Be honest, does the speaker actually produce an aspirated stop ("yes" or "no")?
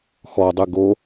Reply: no